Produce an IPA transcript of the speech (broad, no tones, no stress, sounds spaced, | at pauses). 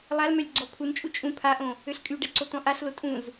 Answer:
lˠ a l m œ lʲ ɡ͡ǀ ɔ pʰ u n t͡ʃʼ u t͡ʃʼ ũ pʰ a ʔ õ | ø ɬ kʼ y ɖ ɛ ǀ o t̪ ɔ̃ ʔ a ɬ l o tʼ ũ z